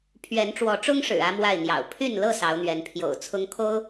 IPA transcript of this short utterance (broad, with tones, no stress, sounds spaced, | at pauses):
pʰ ɥ ɛ˨˦ n ʈ͡ʂ w ɔ˨˦ ʈ͡ʂ ʊ˦ ŋ ʂ ɻ̩˨˩ ä˦ m w a˥˨ ɪ̯ n̪ j ɑ̰˨˩ ʊ̯ pʰ y˥˨ n l ɤ˥˨ s ɑ˨˦ ʊ̯ n̪ ɥ ɛ˨˦ n pʰ j o̰˨˩ ʊ̯ t͡sʰ ʊ˦ ŋ kʰ o˦ ʊ̯